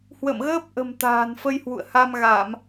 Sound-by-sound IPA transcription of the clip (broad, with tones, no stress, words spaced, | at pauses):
hwə̰˧˨mɣəː˦˥p̚ʔə̤˨˩m t̪a̤ː˨˩nfə˧jhwṵ˧˨ə̯ ha˧mɣa˧˩˨m